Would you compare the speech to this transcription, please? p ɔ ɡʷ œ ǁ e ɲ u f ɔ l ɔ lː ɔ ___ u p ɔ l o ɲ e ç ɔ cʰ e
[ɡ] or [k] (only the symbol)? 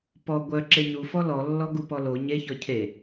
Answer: ɡ